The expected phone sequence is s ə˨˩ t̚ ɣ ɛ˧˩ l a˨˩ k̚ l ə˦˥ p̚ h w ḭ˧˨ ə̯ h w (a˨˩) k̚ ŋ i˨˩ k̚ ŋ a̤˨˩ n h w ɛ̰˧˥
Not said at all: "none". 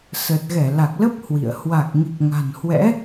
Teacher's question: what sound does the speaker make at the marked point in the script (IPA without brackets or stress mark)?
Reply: a˨˩